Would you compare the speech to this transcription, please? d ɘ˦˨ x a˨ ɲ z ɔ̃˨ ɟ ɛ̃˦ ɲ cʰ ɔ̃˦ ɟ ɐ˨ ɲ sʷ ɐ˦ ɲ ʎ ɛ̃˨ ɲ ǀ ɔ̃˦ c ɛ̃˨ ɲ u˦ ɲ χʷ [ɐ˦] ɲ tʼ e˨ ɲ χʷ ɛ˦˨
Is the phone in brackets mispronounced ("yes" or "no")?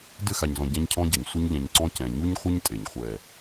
no